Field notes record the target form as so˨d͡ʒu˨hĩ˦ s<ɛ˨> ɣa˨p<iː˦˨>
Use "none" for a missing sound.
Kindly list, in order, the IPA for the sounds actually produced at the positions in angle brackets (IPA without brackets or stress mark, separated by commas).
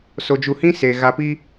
e˨, iː˦